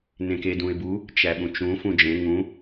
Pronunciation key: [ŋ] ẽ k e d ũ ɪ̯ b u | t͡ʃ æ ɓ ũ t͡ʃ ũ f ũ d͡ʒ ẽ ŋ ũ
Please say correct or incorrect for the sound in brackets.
incorrect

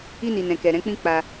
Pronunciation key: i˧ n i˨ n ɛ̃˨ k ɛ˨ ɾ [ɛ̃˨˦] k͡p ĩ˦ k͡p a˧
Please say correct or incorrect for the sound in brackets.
correct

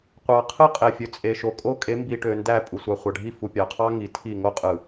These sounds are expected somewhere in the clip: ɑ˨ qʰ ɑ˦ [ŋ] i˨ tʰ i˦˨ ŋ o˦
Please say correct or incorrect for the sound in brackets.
correct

